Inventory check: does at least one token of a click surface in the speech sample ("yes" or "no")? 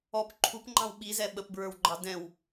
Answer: yes